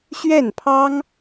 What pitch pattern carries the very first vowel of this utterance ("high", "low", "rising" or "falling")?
falling